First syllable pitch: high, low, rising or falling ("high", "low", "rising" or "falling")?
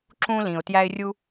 high